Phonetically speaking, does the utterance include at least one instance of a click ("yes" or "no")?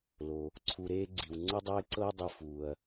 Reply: yes